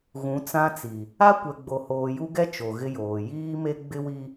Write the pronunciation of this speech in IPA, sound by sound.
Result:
ɣ ũ˨˦ t͡s ã˦ t͡s i˨ | a˦ kʷ ɛ˨ ɡ͡b o˨ h oː˨ j u˦ ɡ ɛ˦ t͡ʃ o˨ ɣ ɪ˦ j oː˨ j iː˦ m e˦ ɡ͡b ɪ˦ w i˦

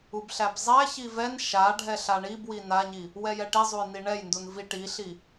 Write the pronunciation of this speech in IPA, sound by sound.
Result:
u b ɬ æ b zˤ æ ç i v ɛ n ʃ a ɖʱ ɛ ɬ a ɳ i b w i n a ɲ i | w ɛ j ɛ ʈ i zˤ u j n i ɳ ɛ j n d u n v i ʈ i ɬ i

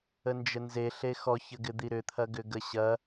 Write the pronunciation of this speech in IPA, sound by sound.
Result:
ə n d͡ʒ ə n z e ɬ e x ɔ ç ə ɡ ɪ d̪ i ɾ ʏ t̪ʰ ɐ ɡ ʏ ɡ ə ɕ ɐ

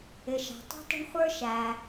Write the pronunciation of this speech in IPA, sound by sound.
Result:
ɪ˩ ʃ ɑ̤˩ tˤ ṳ˥ tˤ ə̤˥ ɳ χʷ ə˞˥ ʃ æ˩

